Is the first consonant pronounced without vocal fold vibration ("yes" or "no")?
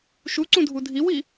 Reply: yes